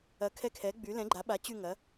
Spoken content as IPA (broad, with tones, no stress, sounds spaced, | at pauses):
ɐ˩˥ kʰ ɛ˦˨ kʰ ɛ˩˥ ɡ͡b y˩˥ l ɛ̃˩˥ ɡ͡ǃ a˩˥ ɓ a˩˥ t͡ɕ y˦˨ ŋ ɐ˩˥